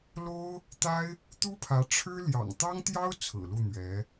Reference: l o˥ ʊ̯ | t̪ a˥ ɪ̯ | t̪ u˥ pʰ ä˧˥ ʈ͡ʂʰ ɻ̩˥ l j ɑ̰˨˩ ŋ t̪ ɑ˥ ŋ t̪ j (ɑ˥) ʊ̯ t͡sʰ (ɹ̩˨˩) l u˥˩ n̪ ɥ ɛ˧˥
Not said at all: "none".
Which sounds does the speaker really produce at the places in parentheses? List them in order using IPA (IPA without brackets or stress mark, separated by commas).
ɑ˥, ɹ̩˨˩